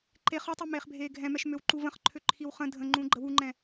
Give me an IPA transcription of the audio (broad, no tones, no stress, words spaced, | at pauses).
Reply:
ǃe χɔtˤu meːχbʱeːɡʱɛ̃mɛʃ møwǃuvə̃χǃʰø ǃʰiwχə̃ dʱə̃ ŋ͡ǃũːɡ͡ǃəwuŋ͡ǃɛ̃